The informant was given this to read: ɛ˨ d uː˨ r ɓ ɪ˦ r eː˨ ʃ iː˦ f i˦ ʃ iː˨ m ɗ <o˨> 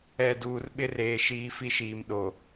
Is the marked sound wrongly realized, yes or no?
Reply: no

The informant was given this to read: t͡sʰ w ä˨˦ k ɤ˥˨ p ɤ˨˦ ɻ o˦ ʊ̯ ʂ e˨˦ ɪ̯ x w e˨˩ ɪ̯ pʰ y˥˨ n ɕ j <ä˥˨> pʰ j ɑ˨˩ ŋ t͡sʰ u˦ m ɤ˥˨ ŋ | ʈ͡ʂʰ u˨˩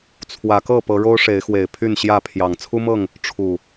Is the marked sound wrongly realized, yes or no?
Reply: no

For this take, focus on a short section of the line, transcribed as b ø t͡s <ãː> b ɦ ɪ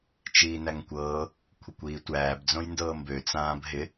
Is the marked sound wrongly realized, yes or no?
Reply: no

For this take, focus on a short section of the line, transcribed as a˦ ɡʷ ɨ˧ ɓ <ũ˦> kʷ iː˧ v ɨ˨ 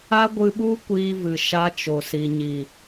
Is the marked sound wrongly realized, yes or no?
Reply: yes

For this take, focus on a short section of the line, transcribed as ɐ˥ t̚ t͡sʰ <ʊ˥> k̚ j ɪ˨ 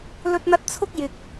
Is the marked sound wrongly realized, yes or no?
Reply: no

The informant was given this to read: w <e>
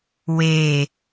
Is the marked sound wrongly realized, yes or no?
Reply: no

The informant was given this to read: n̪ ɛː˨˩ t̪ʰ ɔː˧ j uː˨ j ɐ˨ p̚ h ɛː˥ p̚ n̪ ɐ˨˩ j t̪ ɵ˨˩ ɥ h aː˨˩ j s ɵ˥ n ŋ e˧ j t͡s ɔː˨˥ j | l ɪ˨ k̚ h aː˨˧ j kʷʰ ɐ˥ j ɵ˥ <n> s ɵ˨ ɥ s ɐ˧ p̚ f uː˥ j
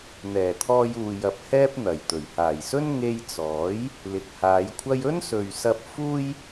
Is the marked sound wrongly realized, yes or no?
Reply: no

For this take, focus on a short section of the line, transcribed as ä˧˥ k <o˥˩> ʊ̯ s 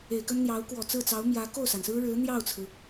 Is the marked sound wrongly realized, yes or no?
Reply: no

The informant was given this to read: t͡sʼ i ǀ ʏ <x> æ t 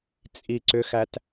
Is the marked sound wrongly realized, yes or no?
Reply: no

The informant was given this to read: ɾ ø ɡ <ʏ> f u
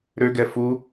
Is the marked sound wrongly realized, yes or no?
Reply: yes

